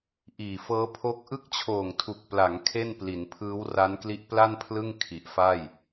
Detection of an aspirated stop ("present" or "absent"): present